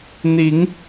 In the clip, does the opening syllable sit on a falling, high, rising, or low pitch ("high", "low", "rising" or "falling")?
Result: rising